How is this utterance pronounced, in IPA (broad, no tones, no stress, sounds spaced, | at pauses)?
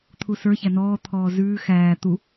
t̪ʰ u s ə˞ ç æ n ɔː t̪ʰ ɔː z ʉː x æː t̪ u